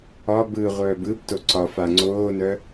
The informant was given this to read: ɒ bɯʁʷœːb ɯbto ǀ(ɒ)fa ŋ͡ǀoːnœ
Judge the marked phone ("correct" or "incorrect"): correct